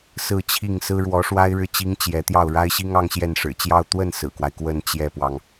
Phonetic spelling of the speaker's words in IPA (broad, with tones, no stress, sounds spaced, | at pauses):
s ɹ̩˥˧ t͡ɕʰ i˥˩ ŋ s ɹ̩˥ ɻ w ɔ˧˥ ʂ w a˥ ɪ̯ ɻ ɻ̩˥˩ t͡ɕ i˥ ŋ t͡ɕ j ɛ˧˥ t̪ j ɑ˥˩ ʊ̯ ɻ a˥ ɪ̯ ɕ i˥ ŋ ɑ˥ ŋ ɕ j ɛ˥˩ n ʂ ɻ̩˨˩ t͡ɕ j ɑ˥˧ ʊ̯ t̪ w ə˥˩ n s ɹ̩˨˩ k w a˦ ɪ̯ k w ə˥˧ n t͡ɕ j ɛ˥˩ p w ɑ˩ ŋ